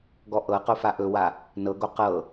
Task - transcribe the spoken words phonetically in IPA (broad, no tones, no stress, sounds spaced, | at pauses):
ɡ ɔ ʔ ɤ q o f a ʔ ɵ w a | n ɤ ɡ o q ɤ